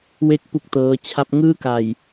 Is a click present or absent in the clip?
absent